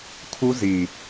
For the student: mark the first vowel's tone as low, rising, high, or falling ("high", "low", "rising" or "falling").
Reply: high